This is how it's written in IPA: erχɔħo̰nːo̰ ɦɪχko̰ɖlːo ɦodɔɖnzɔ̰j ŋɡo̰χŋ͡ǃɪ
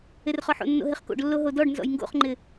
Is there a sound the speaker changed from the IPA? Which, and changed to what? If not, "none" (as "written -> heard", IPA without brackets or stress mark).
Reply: none